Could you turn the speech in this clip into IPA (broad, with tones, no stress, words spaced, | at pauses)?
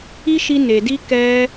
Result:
i˦ʃi˧ ne˨di˧ kɛ˧